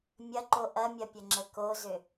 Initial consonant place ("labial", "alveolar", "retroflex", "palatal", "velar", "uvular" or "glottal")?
labial